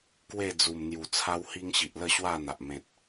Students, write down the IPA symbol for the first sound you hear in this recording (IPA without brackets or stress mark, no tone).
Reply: k